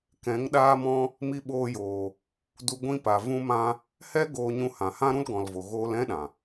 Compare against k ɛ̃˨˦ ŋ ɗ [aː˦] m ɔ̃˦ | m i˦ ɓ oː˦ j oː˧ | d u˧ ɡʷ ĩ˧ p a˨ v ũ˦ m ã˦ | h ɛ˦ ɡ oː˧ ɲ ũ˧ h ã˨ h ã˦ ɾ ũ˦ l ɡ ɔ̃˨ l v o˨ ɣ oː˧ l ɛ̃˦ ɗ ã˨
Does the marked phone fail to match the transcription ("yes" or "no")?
no